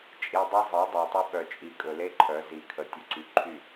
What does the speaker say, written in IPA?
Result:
t͡ʃʼ i˨ dˤ e˦ zˤ i˨˦ dˤ œ˨ tˤ ɵ˦ ɓ œ˨ t͡ʃʼ i˨ kʼ ɵ˨ l e˦ ǃʰ œ˨˦ z i˨ kʰ ə˨ tʲ ɵ˨ ǀ y˨ ǃʰ y˦˨

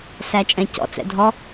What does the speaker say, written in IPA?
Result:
s æ t͡ʃʼ ɛ̃ c ɔ̰ t͡s ɛ̰ dʱ ɔ

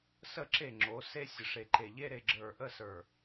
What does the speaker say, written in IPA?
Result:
s ə˦˨ ǁ e˦˨ ŋ͡ǁ o˨˦ s e˦ sʲ ə˨ ʂ e˨ ǃ e˨ ʎ e˦ ɾ e˨ ɡ͡ǁ ə˞˨ ʔ ə˦˨ s ə˞˨

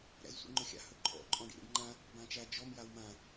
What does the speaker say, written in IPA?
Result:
ɾ æ̰ z sʷ ḭ ŋ͡ǃ ɵ xʲ a̰ h ɵ ǃʼ ɔ̰ ǃʼ ɔ̃ ɖ ḭ ɾ ḭ ɖ ŋ͡ǃ ã | b ã t͡ʃ æ d͡ʒ ɔ m j a w m ã

